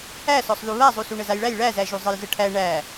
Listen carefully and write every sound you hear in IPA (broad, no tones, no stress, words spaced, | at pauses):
æ sɔsˤðuβazˤu suɳəzajɭæj ɭæzæʒu zˤəjzəʈʰæ ɳæ